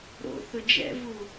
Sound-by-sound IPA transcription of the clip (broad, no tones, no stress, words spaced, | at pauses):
ɾo̰θʊ d͡ʒɛ̰vu